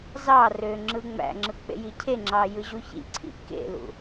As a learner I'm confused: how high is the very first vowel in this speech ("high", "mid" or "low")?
low